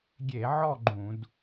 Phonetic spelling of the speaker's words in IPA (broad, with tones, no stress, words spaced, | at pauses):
ɡʲe˧˩˧ʕɔ˥˧ ɡ͡ǃũ˧˩˧d